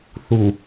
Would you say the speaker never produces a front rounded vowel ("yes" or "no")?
yes